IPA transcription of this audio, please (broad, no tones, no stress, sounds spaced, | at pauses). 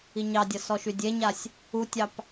i ɲ ɑ dʲ ʌ s ɔ ʃ y dʲ e ɲ a sʲ | u tʲ ɑ p